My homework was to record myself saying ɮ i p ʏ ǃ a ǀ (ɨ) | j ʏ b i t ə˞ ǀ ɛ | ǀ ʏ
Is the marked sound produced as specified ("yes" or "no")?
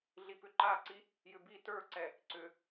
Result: no